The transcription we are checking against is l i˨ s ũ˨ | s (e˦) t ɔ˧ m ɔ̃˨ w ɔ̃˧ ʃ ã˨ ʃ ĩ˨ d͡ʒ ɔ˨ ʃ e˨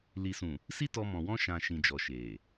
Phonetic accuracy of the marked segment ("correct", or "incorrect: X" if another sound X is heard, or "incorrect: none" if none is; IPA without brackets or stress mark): incorrect: i˦